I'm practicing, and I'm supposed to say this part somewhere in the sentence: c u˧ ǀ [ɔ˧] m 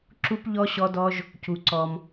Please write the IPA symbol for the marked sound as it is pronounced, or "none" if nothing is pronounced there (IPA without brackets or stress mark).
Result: ɔ˧